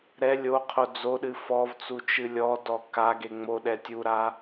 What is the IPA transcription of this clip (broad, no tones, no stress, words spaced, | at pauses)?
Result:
ɾɛ lʲoqʰo d͡zoɗɨ fɔvt͡su t͡ʃɨlʲɔdɔ kaɡe ŋ͡moɗɛ tʲuɾa